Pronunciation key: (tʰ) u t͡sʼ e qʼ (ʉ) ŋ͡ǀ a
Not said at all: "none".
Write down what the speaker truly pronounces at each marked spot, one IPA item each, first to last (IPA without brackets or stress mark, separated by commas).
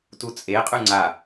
t, ʉ